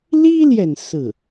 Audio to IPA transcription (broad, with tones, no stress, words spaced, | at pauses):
li˥ljɛ˨n sɹ̩˥˩